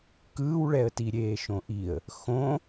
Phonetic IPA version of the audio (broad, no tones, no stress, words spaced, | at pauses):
kɯːwɭɛə̯ tiɾʲeːʃõʔiə̯ | xõ